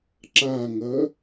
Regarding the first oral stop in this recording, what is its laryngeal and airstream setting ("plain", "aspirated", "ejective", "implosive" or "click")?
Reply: click